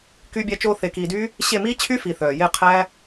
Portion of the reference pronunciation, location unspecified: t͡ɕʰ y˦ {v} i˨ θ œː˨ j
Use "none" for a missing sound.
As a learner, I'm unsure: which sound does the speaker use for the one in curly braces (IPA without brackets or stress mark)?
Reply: f